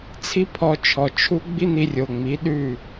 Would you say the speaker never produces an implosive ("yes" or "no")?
no